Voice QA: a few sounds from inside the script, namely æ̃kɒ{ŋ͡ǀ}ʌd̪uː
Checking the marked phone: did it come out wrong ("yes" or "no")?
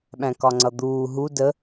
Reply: no